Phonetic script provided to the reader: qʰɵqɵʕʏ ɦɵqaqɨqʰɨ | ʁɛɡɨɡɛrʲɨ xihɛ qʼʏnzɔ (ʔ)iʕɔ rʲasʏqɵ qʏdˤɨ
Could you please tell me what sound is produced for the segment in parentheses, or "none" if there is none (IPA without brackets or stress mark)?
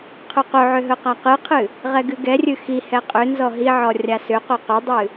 ɦ